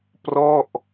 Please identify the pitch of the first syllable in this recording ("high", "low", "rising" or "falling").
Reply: falling